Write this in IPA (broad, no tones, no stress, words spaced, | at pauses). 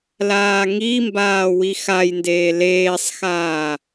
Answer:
laːŋimbaː wixajndeː leːsˤxaː